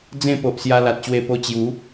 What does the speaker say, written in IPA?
d͡zẽ˥˧po˨ʔsja˧ la˨t̚ɕwe˧ po˧t͡ɕju˨˦

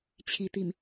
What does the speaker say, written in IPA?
t͡ɕʰi˨˩ t̪i˨˩m

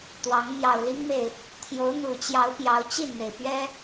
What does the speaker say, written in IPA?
t̪wɑ˨˦ŋ mjɑ˨˩ʊ̯li˦ŋme˨ɪ̯ | t̪ʰjo˨˦ʊ̯ n̪u˨˩t͡ɕjɑ˨˦ʊ̯ pjɑ˨˦ʊ̯t͡ɕi˥˨nn̪e˩ɪ̯ pɥɛ˦

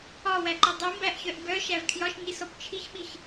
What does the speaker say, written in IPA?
ɒwæǃi dˤimbæʔçœʔ bœʃæv kʰjɒʃɲisɔp t͡ʃʰiçɓiç

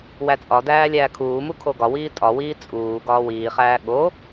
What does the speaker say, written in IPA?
wæt͡sʼɒdæː lʲæːkʰuːmu kʰoɡɒwiː tʼɒwiː t͡sʼuː ɡɒːwiːχæː ɠo

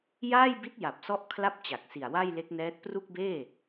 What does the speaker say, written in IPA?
jaː˥˩jbi˦˥t̚ja˨˩p̚sɔ˦˥ʔ kʰla˥˩p̚t͡ɕa˨˩k̚ si˨˩a̯ wa˥˩jle˦˥k̚nɛː˦˥t̚ pru˥˩k̚beː˥˩

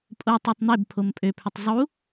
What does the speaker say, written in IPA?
pʼotˤutˤ n̪ebpʰom pʼøpʰʏtˤ zˤu

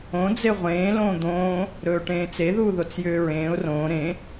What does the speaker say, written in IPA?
õ d͡zeʁʷẽː lõːd̪õː | ɾɵːʈẽːt͡se ðuːðot͡sjʏːɹẽːʊ̯ rõː ɾẽ

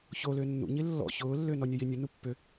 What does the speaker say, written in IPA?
çolʏː nːṵɲi lːɔ̰ çʊːlːʏː nɔnʲɛjinʲʊ nupːʏ

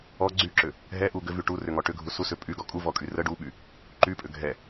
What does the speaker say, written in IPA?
ɔ ɡ͡ǀyǁʏ | ɦɛʔu ɡʏvy ʈurʏŋɔ ʈʏɡʱu susʏ pʼyɡɔ kʼuvɔkʼy rə ɖuɓy | ǃypʼʏ ɡʱɛ

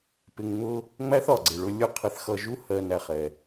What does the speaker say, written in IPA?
pɪ˧ŋ ŋ͡mʊ˦ | ŋ͡mæ˦θɒ˨ɡ͡ǀɪ˨ɭʊ˧ lʲʊ˦˨qʰɪ˧θ xʌ˧ʒu˦ hɜ˧næ˧χ ɛ˧

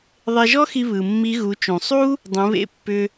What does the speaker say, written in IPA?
ðˤe˧ʒɔ˥xi˧ βɯ˩mːi˧˥ ɣu˩˧t͡ʃũ˩sˤu˥ | dˤũ˩˧βḛ˧˥pːʏ˧

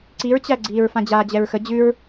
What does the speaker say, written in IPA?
ǀiɹt͡ɕæɡ͡ǀiːɹ fãd͡ʑaːd͡ʑɛɹxə d͡ʑʉɹ

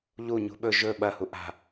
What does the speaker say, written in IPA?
ʎu ɲṳɓɵ ʒɵ ɓɐhu ʔa̤

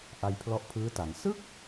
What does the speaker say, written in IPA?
ʔa˧jpʰlɔ˦˥ʔpʰɯː˦˥ta˩˦n sɯ˥˩k̚

